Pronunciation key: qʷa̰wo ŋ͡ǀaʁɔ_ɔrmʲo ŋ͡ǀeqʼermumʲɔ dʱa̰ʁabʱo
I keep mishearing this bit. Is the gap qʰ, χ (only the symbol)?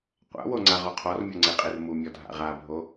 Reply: qʰ